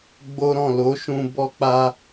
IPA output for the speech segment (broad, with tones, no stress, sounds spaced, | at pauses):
ɡ͡b o˦ ɾ ɔ̃˦˨ l o˨˦ ʃ ũ˧ b ɔ˧ k͡p a˧